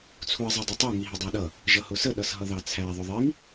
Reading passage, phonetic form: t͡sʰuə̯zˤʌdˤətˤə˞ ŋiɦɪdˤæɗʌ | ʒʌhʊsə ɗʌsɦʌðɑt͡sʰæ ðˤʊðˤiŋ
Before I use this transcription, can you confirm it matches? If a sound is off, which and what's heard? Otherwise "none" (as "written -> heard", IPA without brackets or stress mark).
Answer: none